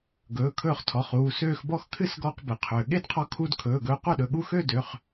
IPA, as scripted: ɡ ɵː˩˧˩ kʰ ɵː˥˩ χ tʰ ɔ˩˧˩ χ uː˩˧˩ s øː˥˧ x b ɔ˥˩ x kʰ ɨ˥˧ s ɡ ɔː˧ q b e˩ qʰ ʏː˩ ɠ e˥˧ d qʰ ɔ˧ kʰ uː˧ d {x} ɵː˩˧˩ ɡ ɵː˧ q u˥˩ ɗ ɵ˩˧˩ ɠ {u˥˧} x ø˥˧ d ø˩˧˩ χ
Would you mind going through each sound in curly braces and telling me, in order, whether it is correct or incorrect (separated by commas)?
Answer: incorrect, correct